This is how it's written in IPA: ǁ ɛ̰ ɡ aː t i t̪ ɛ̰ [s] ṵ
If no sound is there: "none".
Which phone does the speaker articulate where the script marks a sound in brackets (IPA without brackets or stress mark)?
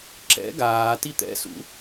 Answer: s